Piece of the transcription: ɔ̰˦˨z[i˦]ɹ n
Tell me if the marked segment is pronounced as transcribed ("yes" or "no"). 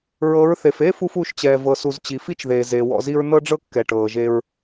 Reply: yes